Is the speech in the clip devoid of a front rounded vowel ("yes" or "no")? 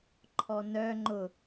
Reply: no